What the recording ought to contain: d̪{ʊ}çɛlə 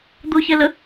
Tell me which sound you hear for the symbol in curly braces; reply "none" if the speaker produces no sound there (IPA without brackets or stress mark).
ʊ